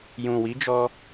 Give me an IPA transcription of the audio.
j ũ˨ w i˨˦ d͡ʒ ɔ˧

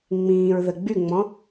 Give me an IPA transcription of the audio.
ŋ͡m ĩː ɹ ð ə ɡ͡b y ŋ͡m ɔ̃

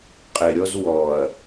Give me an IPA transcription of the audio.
qʼ ɪ ɾʲ ɔ z w ɔ ɐ̯

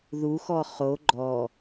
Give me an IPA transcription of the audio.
ð u x ɔ χ o ɡ͡ǃ ɔ

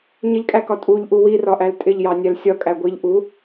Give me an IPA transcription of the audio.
ɲ ɪ ʎ kʼ æ k ɒ tʼ u ʎ ʔ u w i r ɒ ʔ æ l tʼ ɪ ʎ j ɑ nʲ æ l sʲ ɒ kʼ æ ɡʷ i ʎ ʔ u

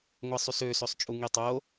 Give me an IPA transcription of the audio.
ŋʷ e sˤ y s ø s ø sˤ t͡ʃʼ u ŋ i tˤ o

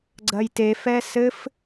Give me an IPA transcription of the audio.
ɡ͡ǀ ɐ j t e f ɛ s ɘ f

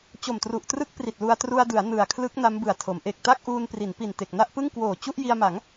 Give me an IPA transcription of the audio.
t͡ɕ o˨˩ m t r u˨˩ ʔ t r ɯ˦˥ k̚ p r i˨˩ t̚ l u˧ a̯ t r u˧ a̯ d ɯ˩˦ a̯ n ɯ˨˩ a̯ kʰ l ɯ˦˥ k̚ n a˦˥ m b ɯ˨˩ a̯ tʰ o˩˦ m ʔ e˨˩ k̚ t a˥˩ k̚ ʔ uː˧ n p r i˩˦ n p i˨˩ n t e˨˩ k̚ n a˥˩ ʔ p ɯ˥˩ ŋ k w oː˨˩ t͡ɕ u˥˩ ʔ j i˧ a̯ m a˩˦ ŋ

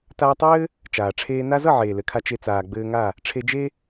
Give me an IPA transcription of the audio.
t aː˧ tˤ ɘː˦ | t͡ʃ aː˨ ʈ͡ʂʰ eː˧ n a˦ z ʌ˦˨ ʕ eː˨ l ɘ˨ kʰ a˧ t͡ʃ e˧ t͡s aː˨ ɡ͡b ɘː˧ ŋ a˦˨ | ʈ͡ʂʰ e˧ d͡ʒ e˦

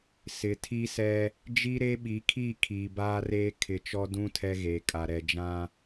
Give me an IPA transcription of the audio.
s ɪ˨ tʰ i˦ s ɛ˦ | d͡ʒ i˦ ɾ e˦ ɓ i˨˦ kʰ i˦˨ kʰ iː˨ b aː˦ r eː˦ kʰ ɪ˨ t͡ʃ ɔ˦ d ũ˦ tʰ ɛ˦ ɣ eː˨ kʼ a˨ ɾ ɛ˨ d͡ʒ ã˦

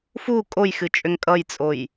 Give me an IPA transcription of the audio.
f u kʼ o j x ɨ t͡ʃʼ ʏ ŋ kʼ ʌ j t͡sʼ o j

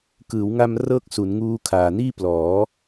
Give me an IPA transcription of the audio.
k ɯː˩˦ w ŋ a˧ m r ɤː˥˩ k̚ s u˩˦ n ŋ uː˦˥ kʰ aː˨˩ n iː˥˩ p l ɔː˩˦

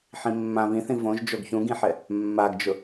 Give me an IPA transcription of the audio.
ħ ĩ mː ã β ĩ θ ĩ v õ ʒ d͡ʒ o ɡ ç ũ ɡ ĩ ħ ɛ | mː a ɡ d͡ʒ ʊ

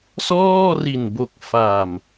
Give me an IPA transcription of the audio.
s ɔː˥˩ r i˨˩ n b o˨˩ k̚ f a˨˩ m

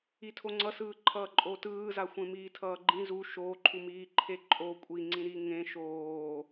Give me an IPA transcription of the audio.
i tʰ o ŋ͡ǀ ʌ s ɯː ǃʰ ʌː ǃʼ oː t ɯː z a xʷ ẽ m iː tʰ ʌː ɡ͡ǃ ĩ z u ʃ oː ǃʰ u m iː ǃʰ e ǃʼ o kʷʼ i ŋ͡ǀ ĩ ɾ i ŋ ẽ ʃ oː

